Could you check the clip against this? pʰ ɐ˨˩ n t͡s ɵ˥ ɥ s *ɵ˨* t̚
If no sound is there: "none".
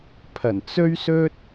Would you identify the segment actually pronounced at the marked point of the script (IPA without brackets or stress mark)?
ɵ˥